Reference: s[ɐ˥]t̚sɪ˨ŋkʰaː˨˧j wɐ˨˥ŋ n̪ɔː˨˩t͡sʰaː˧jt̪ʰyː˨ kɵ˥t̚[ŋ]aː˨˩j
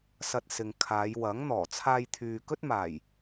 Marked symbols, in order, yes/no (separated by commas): no, no